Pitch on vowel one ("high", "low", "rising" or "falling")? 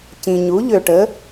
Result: low